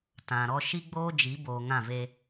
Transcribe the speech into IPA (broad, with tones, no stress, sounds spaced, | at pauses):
t ã˨ ɾ ɔ˦ ʃ i˦ ɡ͡b oː˦ d͡ʒ i˨˦ b oː˨ ŋ ã˦˨ v e˦